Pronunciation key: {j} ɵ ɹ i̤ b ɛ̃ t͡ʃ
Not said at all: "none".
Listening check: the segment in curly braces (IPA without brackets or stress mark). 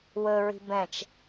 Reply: w